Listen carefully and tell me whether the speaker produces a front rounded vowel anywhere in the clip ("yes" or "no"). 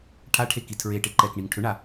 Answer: yes